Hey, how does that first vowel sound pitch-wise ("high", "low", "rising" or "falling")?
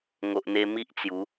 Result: low